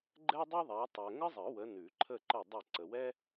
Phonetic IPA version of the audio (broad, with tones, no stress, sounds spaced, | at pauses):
ɡ͡ǃ ɛ˥ dˤ ʉ˥ ðˤ a˨˦ tˤ ɛ˨ ŋ ə˥ zˤ ə˨˩˦ w ə˨˦ n ʉ˨˩˦ ǃʰ ə˦˨ ǃ ə˦˨ dˤ ə˦˨ ǀ ə˨ w ɛ˥